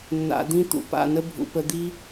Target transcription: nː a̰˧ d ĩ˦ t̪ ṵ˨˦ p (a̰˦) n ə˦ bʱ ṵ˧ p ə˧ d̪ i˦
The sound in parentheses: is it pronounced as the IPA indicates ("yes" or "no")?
no